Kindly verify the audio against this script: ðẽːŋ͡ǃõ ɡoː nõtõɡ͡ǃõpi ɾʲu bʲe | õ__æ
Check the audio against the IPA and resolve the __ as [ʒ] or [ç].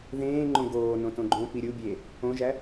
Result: ʒ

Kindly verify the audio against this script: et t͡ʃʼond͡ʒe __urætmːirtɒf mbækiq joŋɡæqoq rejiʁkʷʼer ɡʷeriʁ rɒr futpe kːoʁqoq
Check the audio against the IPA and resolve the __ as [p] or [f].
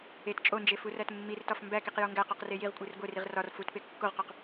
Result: f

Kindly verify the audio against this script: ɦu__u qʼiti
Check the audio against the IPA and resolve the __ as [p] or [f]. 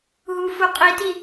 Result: f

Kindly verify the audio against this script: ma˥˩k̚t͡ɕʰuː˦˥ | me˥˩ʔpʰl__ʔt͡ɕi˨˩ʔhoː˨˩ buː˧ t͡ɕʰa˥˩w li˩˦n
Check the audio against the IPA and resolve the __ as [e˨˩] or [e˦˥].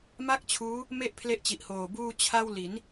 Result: e˦˥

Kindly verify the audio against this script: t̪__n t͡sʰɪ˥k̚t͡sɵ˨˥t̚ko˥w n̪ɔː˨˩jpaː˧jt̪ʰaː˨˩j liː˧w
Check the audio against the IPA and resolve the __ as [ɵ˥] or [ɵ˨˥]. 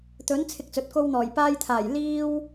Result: ɵ˨˥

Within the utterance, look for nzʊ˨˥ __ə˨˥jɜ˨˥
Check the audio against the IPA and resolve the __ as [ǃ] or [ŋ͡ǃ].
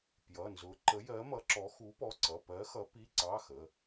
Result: ǃ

